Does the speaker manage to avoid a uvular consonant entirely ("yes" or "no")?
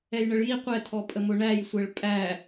no